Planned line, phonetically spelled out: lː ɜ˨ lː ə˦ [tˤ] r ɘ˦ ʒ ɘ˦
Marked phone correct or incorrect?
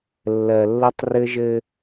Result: correct